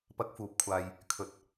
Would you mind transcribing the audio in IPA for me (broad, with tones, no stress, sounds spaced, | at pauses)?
p ɐ˧ k̚ f uː˨ p̚ kʷʰ aː˨ j | kʰ ɵ˨ t̚